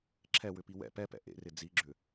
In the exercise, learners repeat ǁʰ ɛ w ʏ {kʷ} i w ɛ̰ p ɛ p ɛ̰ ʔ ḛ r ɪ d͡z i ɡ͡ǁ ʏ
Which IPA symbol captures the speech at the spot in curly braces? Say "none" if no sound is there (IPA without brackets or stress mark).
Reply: p